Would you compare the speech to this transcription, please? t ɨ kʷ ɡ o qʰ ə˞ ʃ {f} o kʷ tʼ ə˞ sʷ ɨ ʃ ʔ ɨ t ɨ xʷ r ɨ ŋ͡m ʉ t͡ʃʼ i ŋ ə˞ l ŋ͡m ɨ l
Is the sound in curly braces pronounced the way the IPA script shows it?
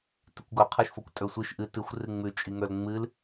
yes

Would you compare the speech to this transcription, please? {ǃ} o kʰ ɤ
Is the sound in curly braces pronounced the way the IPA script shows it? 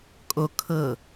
no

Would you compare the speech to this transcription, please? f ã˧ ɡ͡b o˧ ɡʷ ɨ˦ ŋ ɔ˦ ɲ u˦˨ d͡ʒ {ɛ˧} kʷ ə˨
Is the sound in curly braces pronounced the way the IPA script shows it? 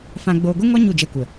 yes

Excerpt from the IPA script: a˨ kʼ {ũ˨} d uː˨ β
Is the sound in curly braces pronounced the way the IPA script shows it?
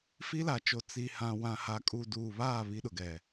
no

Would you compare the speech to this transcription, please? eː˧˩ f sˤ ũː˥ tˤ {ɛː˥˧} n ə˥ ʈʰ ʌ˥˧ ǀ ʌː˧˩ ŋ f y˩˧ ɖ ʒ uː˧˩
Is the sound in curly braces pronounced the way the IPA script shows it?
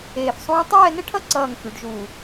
yes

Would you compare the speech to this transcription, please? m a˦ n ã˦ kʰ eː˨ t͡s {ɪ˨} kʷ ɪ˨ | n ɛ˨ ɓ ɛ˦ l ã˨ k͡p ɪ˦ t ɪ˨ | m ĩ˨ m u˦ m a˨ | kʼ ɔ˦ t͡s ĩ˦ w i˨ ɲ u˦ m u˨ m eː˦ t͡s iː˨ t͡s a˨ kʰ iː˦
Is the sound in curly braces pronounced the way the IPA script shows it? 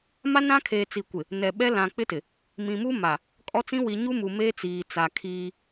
no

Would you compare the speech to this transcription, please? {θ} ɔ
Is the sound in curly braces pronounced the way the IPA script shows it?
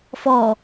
no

